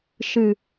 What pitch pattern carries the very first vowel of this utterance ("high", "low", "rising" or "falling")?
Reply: low